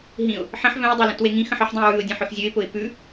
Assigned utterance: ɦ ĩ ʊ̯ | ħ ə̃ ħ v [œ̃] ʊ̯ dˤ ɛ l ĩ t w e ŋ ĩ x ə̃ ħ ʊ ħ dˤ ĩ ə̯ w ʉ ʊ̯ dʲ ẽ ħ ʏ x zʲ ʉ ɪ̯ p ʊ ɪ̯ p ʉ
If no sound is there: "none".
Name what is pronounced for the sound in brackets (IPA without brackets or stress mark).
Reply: œ̃